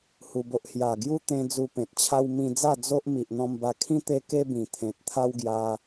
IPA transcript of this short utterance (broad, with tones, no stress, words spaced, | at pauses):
hu˧bo˦ʔ hja˨˩ɡju˦ t̪ẽ˧ d͡zu˧pẽ˨t̚t͡ɕʰa˦w mĩ˧d͡za˥˧ d͡zo˦ʔ mi˨ʔn̪ɔ̃˧mba˧kʰĩ˦ t̪e˦ ke˦bĩ˨˩t̪ʰẽ˨t̚ t̪ʰa˦wɡja˧